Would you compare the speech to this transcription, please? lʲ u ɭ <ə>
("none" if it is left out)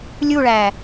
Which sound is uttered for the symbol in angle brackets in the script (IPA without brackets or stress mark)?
æ